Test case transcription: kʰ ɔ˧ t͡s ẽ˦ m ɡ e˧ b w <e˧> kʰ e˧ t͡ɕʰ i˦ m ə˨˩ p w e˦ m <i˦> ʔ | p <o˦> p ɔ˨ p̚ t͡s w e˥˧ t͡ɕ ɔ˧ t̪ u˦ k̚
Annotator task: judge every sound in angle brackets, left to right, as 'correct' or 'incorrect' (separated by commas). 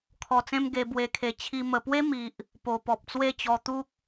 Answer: correct, incorrect, incorrect